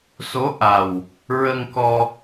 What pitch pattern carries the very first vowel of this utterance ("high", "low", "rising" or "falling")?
rising